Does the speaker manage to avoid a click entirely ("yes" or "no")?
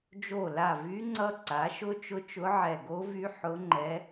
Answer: no